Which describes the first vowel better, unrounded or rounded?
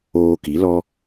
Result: rounded